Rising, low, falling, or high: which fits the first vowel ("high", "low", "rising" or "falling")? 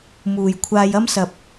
low